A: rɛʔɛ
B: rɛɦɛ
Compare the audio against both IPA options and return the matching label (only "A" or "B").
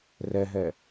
B